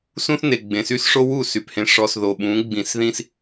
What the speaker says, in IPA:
s ũ˦ θ n e˨ ɡ͡b ẽ˨ s y˦ s ʂ o˦ w u˦˨ s y˨ p h ẽ˨ ʂ ɔ˨ s ð o˨ ɓ ũ˨˦ ɡ͡b ĩ˨ s ð ĩ˦ s

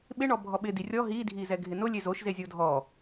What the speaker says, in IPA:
ɓ ɪ ɳ ɔ bʱ ɔ ɓ ɪ d i rʲ ɔ ɦ i dʱ i z ɛ ɡʱ ɪ n ʊ lʲ e z o ʃ z e zʲ o dʱ ɔ

